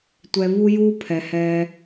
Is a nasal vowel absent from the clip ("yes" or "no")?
yes